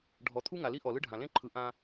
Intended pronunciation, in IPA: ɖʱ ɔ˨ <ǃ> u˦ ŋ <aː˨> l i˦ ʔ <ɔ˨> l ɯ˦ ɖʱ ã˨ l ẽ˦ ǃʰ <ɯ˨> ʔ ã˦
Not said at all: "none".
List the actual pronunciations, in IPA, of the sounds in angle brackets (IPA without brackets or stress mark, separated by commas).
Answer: t̪ʰ, a˨, ɔ˨, ɯ˨